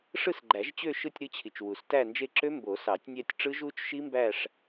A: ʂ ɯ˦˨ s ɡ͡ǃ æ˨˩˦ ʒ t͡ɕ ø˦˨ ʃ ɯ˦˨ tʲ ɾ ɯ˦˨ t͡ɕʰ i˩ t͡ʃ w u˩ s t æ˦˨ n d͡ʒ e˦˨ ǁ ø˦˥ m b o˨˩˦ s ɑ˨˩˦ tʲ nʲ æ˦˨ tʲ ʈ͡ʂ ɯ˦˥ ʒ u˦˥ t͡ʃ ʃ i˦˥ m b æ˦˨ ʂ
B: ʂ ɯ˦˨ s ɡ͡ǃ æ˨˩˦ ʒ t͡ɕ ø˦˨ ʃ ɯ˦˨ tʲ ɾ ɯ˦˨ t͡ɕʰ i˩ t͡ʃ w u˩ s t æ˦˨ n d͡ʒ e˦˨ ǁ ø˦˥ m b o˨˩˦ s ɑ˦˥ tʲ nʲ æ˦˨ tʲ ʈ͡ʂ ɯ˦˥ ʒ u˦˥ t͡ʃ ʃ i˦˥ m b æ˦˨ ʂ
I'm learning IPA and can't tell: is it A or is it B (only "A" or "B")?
A